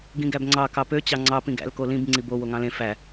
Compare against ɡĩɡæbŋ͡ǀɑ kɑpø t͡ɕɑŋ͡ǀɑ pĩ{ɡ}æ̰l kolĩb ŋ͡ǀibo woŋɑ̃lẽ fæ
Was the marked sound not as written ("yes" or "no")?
no